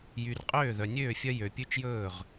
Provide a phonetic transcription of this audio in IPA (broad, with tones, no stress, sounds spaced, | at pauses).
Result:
j y˨ r qʼ øː˦˨ ð œ˨ nʲ øː˦˨ fʲ œ˦ j ø˨ pʲ ʉ˦ t͡ʃ j ɵː˦˨ ʁ